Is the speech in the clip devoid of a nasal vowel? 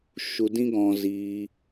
no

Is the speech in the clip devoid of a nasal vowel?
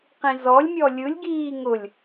no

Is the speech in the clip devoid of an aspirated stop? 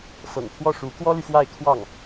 no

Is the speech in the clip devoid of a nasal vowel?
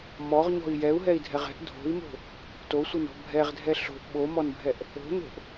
yes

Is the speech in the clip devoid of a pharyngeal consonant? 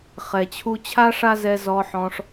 no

